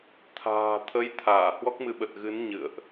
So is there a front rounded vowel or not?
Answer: no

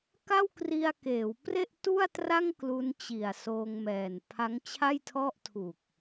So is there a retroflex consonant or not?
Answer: no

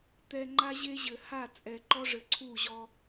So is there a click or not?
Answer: yes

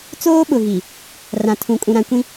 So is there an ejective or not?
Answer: yes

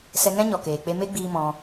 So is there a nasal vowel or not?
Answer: yes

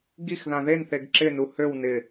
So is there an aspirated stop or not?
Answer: no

